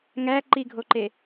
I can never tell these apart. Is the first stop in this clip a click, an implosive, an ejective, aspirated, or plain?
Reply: click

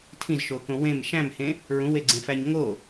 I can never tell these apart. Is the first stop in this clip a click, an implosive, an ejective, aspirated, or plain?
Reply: aspirated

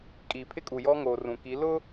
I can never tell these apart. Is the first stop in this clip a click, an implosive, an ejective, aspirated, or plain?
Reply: ejective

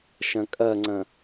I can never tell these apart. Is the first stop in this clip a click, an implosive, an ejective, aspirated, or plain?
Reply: ejective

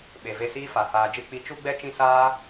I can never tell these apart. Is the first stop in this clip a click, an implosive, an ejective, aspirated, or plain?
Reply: implosive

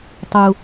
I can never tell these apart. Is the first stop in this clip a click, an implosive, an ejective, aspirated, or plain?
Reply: plain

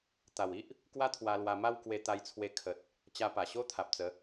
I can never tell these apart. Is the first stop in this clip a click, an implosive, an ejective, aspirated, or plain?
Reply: plain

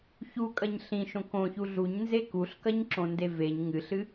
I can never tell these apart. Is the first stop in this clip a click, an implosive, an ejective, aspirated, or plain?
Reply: ejective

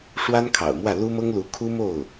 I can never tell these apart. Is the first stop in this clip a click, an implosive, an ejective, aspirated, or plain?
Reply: aspirated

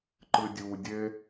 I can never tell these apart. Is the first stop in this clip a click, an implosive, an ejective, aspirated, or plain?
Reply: click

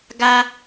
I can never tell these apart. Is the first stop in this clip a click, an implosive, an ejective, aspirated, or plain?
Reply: plain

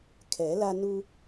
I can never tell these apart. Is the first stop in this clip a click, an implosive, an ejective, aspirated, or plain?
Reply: aspirated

